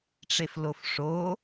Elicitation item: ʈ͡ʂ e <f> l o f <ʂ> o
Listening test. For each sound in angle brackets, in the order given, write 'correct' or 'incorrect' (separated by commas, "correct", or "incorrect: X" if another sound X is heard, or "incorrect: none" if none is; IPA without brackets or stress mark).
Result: correct, correct